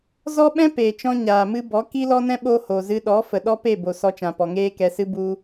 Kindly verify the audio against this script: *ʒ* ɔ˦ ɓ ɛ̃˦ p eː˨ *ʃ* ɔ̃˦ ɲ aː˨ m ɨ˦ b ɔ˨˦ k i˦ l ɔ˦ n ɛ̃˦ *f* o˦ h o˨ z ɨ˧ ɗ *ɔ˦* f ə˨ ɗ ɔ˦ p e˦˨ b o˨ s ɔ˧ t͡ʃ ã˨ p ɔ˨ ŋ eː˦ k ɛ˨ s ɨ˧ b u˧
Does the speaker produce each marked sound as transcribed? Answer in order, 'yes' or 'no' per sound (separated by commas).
no, no, no, no